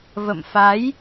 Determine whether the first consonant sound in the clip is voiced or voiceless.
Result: voiced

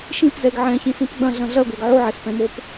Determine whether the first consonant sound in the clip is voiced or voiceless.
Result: voiceless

